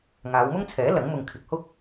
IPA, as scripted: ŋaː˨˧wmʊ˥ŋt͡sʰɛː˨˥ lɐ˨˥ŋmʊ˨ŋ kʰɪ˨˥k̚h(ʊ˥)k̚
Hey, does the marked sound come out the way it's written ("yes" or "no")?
yes